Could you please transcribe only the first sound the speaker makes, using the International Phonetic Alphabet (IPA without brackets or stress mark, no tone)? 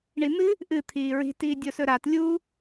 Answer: ɳ